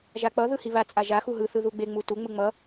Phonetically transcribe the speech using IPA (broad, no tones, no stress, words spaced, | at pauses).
ʒak͡pʌ ðɯhiβa t͡sʼaʒa xuɦɯ θɯðuɡ͡be ŋ͡mutu ŋ͡mɯŋ͡mʌ